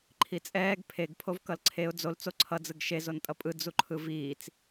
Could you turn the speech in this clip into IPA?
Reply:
ǃʰ i t͡sʼ ɛː ɡ pʰ e ɡ pʰ o v k ʌ l ǀʰ e ʊ̯ d͡z o l t͡s o ǀʰ ʌ d͡z ɯ ɡ ʃ e z o n tʼ ʌ pʼ ɯ d͡z u ǃʰ ɯ v iː t͡s

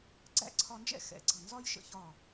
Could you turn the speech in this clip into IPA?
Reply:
ɡ͡ǀ æ̰˥˩ ǀʰ ɒ˧ n d͡ʒ ɛ̰˥ x ɛ̰˩˧˩ ɡ͡ǀ ʌ˥˩ n z ɒ˥ j ʃ ə̰˧ ç ɒ˥˩

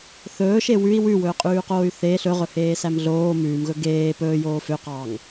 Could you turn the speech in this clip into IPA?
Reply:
θ ɵː ʃ e w ʉ i̯ w ʉ w ɵː qʼ ʉː q oː y̯ θ e ɬ ɵ ʁ ɵ h eː s æ m ɮ oː m ʉː m ɣ ɵ ɡ eː p ɵː j oː f ø q ɑː ŋ

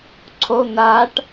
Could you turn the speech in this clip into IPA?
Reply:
ǀʰ o n̪ a ʈ

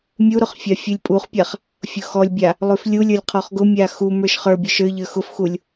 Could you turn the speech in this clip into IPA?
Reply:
mʲ u ɾ ʊ χ fʲ a fʲ ʉ lʲ pʼ u χ pʲ a χ | fʲ ʊ x ɔ lʲ bʲ a | lˠ ʉ f lʲ u lʲ ə˞ lʲ qʰ ɔ χ ɡ ʊ mʲ a x u m ə˞ ʃ χ ə˞ bʲ ʊ ʃ ə˞ ʎ ə˞ x ʊ f x u lʲ

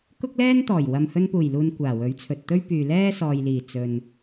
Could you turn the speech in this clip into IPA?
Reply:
k ʊ˥ k̚ l ɛː˥ n t̪ ɔː˨˩ j w ɐ˨ m h ɵ˧ n p uː˨˩ j l uː˨ n kʷ aː˨˩ w ɵ˨˥ ɥ t͡sʰ ɵ˨ t̚ t̪ ɵ˥ ɥ p yː˨ l ɛː˥ s ɔː˨ j l iː˨˩ t͡s ɵ˨ n

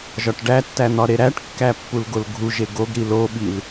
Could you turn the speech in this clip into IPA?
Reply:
ʒ ɒ ʈ ɖ æ tː æ n̪ ɒ ɾ e ɾ æ ʈ kː æ pː u l ɡ o l ɡʱ u ʒ e ɡ o ɡ ɾ i l o ɓ i l

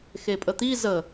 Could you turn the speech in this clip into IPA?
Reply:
x e pʼ ə t̪ i z ə

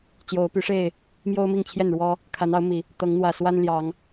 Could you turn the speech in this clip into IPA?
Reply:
t͡ɕ j o˨˦ ʊ̯ p y˨˦ ʂ e˥˨ ɪ̯ | m j o˦ ʊ̯ m i˥˨ ŋ t͡ɕʰ j ɛ˥˨ n ɻ w ɔ˦ | kʰ a˨˦ n ɑ˨˦ ʊ̯ m i˨˩ | t̪ ɤ˨˦ ŋ n̪ w ä˨˩ s w a˦ n l j ɑ˨˦ ŋ

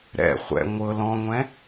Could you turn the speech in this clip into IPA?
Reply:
ɾ ɛ̰ χʷ ɛ̰ ŋʷ ɤ l ɔ̃ ŋʷ ɛ̃

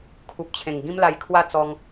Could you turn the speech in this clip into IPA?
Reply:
kʰ u˨ p̚ t͡ɕʰ ẽ˨˩ ŋ ɡ ĩ˦ m l a˧ j kʰ w a˥˧ t͡s ɔ˧ ŋ

